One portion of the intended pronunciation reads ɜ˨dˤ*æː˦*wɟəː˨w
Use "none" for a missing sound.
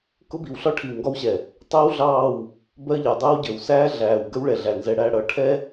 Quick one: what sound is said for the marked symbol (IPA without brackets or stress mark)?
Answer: əː˦